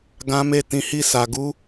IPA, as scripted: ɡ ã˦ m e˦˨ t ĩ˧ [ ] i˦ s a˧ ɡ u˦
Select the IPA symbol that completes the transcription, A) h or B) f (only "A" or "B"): A